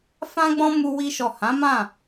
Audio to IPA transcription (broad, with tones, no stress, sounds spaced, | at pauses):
f ã˦ ɡ͡b ɔ̃˦ m u˦ w i˦ ʃ ɔ˦˨ h ã˨˦ m ã˦˨